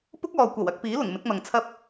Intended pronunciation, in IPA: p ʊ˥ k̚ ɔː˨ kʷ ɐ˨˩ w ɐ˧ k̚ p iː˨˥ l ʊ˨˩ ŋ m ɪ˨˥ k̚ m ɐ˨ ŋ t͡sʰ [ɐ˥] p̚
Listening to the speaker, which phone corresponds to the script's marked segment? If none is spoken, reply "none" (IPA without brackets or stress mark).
ɐ˥